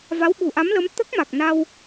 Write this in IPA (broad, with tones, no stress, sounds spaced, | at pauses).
v a˧˥ w ɓ u˨˩ ʔ a˧˥ m l ə˧˥ m t̪ ə˦˥ k̚ m a˨˩ k̚ n a˧ w